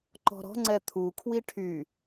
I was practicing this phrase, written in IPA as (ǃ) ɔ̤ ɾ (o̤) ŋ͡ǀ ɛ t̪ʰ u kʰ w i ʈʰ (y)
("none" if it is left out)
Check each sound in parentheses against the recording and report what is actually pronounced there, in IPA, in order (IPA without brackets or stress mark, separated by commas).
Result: ǃ, ɔ̤, y